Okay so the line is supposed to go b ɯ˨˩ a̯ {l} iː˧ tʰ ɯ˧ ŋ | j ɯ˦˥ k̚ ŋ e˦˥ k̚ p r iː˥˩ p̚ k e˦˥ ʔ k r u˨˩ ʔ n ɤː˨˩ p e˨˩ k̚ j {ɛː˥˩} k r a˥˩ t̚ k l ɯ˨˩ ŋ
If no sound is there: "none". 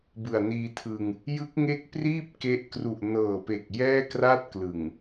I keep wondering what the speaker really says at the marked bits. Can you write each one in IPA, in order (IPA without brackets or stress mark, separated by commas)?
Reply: n, ɛː˥˩